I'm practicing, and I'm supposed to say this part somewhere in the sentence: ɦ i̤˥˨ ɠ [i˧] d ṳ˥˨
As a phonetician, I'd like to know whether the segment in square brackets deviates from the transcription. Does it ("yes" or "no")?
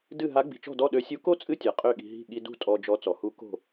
no